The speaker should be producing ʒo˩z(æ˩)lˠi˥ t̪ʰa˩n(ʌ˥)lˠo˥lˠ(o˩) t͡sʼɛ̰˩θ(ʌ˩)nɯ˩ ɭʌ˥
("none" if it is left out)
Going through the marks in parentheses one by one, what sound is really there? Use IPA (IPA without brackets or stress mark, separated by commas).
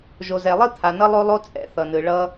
ɛ˩, ʌ˥, o˥, ʌ˩